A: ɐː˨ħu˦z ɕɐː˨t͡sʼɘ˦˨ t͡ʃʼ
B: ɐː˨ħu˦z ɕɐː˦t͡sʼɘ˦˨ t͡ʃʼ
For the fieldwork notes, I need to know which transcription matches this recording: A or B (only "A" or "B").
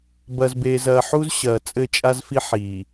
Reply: A